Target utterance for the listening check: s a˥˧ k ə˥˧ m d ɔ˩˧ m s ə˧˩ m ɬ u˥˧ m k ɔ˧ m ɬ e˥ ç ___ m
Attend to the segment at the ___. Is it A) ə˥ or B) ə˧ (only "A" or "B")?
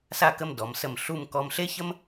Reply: A